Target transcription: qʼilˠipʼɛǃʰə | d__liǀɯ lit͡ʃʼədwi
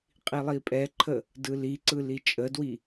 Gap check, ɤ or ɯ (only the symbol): ɯ